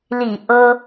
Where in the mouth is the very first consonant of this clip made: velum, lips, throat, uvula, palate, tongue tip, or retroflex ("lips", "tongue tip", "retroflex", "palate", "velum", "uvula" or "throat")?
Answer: tongue tip